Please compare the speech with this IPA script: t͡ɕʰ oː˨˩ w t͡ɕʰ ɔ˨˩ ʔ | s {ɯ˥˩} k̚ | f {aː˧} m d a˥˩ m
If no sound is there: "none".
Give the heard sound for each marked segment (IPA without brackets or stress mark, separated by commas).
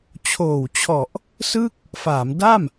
ɯ˥˩, aː˩˦